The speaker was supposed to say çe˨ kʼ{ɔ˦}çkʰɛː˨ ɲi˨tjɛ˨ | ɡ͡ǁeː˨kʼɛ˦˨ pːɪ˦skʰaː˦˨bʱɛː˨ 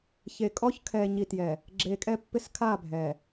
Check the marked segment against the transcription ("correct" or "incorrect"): correct